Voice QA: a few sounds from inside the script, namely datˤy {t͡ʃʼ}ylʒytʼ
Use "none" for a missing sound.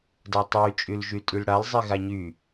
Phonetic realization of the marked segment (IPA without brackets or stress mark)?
t͡ʃʼ